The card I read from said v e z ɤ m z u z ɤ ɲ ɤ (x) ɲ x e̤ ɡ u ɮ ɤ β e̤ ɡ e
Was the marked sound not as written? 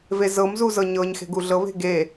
yes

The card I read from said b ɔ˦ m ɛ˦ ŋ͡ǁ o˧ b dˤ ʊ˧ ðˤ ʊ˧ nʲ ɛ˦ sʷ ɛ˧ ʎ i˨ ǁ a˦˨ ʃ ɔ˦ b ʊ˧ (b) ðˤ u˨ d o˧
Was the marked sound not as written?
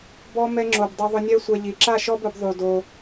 no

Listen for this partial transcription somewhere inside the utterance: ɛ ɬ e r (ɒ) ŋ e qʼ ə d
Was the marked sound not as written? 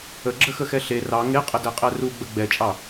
yes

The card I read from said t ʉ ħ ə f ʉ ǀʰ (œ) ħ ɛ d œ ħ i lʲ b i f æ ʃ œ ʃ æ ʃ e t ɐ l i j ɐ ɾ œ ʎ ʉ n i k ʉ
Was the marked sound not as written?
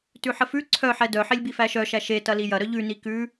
no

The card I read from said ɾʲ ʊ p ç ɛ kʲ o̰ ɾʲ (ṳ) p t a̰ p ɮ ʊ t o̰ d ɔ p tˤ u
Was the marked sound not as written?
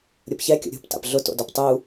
no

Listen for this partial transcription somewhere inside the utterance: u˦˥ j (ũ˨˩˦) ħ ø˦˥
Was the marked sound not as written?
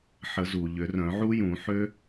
no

